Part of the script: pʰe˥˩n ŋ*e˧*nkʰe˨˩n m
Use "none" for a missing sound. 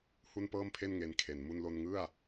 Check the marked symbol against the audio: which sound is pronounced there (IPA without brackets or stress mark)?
e˧